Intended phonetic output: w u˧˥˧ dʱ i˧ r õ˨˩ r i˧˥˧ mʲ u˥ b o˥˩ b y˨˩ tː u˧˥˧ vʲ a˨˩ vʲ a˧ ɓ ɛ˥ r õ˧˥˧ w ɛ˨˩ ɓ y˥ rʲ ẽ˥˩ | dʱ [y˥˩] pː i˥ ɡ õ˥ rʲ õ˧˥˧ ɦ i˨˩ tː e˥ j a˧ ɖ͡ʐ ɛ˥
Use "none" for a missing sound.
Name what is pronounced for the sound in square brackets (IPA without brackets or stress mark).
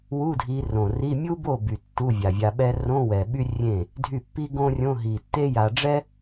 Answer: y˥˩